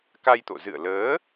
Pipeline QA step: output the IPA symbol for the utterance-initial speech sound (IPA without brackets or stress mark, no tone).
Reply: k